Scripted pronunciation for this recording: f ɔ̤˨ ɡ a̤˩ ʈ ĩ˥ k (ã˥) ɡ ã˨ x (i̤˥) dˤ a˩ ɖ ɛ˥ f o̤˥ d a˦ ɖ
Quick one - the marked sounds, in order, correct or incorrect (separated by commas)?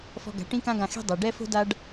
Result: correct, correct